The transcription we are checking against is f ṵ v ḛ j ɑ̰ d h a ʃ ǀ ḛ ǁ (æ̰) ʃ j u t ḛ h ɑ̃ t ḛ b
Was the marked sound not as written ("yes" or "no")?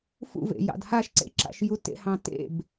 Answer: yes